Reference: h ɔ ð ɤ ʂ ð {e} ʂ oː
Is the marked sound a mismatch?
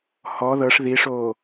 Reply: yes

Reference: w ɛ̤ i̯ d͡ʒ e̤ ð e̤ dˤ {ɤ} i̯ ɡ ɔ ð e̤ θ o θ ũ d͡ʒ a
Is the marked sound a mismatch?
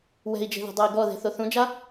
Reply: no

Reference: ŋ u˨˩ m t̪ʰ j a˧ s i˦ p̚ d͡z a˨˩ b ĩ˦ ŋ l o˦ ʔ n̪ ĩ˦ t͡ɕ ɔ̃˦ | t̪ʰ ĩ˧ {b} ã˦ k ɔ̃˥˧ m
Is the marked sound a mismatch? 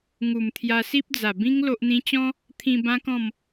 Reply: no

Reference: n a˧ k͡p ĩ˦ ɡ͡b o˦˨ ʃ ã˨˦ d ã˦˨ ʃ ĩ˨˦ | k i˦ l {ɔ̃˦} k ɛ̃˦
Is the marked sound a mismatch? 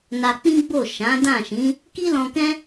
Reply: yes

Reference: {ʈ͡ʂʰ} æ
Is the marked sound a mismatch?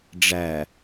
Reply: yes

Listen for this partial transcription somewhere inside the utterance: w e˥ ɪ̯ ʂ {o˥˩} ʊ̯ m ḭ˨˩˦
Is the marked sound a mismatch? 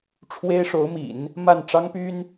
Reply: yes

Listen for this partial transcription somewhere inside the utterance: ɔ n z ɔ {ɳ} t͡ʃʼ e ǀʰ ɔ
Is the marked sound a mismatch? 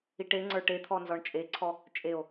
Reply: no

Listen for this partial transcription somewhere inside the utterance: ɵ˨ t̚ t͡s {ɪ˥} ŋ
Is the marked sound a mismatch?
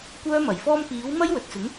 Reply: yes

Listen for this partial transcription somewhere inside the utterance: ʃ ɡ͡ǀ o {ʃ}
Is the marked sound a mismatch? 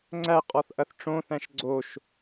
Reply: no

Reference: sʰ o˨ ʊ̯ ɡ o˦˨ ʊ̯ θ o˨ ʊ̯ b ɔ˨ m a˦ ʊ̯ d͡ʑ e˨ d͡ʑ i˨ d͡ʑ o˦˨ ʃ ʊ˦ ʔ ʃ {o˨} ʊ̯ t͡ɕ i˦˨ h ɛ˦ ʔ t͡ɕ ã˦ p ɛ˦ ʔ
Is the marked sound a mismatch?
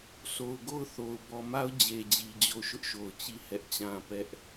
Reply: no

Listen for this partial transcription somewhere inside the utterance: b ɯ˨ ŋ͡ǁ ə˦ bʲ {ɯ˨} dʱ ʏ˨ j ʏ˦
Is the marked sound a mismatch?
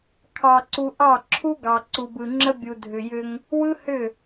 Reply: yes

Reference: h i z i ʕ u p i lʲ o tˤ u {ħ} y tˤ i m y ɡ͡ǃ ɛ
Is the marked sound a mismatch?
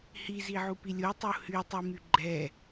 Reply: yes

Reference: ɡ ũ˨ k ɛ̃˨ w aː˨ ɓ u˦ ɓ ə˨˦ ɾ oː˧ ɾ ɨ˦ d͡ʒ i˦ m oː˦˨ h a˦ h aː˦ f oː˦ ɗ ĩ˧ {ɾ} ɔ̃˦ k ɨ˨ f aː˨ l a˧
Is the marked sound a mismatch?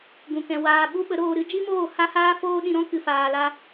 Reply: no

